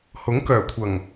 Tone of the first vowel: rising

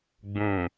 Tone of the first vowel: low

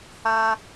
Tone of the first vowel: high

